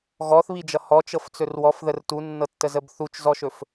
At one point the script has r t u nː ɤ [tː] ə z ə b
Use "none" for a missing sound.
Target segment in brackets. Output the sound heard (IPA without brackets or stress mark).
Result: tː